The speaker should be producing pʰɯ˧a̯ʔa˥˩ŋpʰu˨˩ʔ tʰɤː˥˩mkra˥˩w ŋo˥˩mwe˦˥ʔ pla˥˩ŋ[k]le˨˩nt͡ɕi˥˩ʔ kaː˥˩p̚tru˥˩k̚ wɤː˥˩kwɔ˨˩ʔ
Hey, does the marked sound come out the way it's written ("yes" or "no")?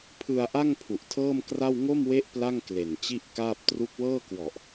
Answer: yes